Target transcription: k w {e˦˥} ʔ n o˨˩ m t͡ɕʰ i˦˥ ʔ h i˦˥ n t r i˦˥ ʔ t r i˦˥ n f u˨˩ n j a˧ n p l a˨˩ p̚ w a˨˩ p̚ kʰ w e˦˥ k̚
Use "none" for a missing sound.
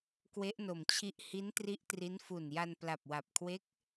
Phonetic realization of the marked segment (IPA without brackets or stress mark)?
e˦˥